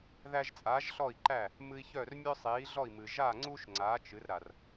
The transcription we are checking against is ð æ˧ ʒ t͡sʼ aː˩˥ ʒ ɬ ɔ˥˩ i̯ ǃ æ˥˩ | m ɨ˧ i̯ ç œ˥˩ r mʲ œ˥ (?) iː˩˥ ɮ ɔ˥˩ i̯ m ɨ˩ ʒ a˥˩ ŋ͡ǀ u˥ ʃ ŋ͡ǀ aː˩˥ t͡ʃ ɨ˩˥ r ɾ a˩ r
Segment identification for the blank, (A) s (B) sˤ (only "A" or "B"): B